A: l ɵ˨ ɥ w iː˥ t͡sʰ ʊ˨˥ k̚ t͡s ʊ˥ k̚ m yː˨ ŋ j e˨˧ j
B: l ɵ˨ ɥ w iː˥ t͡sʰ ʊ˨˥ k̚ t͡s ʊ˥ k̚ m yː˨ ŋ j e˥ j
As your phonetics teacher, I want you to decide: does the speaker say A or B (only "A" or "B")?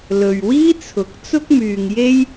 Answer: B